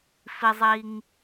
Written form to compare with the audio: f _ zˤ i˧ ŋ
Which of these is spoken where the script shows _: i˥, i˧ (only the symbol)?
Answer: i˧